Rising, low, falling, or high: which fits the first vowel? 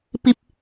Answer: high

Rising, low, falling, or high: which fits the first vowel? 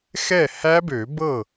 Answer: falling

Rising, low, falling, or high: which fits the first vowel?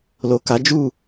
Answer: low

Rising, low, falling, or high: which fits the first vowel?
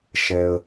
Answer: low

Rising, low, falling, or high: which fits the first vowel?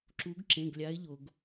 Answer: rising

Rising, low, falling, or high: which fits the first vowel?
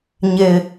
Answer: low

